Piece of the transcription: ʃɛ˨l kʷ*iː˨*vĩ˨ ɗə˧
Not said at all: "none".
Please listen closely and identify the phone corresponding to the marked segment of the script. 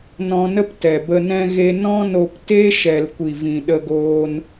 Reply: i˨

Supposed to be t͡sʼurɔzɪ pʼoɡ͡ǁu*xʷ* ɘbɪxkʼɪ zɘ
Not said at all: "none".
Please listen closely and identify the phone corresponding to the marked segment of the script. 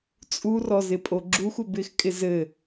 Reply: xʷ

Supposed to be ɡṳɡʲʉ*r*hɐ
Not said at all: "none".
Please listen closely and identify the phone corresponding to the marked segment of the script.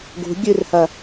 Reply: r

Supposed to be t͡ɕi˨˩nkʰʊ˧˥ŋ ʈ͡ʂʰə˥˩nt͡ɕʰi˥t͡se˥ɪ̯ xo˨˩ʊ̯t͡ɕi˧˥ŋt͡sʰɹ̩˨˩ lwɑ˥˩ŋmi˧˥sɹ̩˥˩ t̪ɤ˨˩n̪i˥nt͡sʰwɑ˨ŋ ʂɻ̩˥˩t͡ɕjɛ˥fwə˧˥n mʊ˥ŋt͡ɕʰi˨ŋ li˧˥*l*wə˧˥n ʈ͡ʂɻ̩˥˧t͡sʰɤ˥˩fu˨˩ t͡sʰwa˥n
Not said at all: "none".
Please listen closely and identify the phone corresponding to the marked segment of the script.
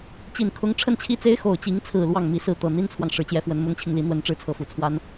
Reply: n̪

